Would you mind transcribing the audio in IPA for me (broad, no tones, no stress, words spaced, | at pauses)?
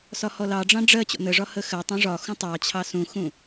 sɒhɔlɑɖ͡ʐɑ̃ ɖ͡ʐɜ t͡ɕɔ̰nəʐɒ həxɜtˤũ ʐɒxũ tˤɑt͡ɕʰɑ sũxũ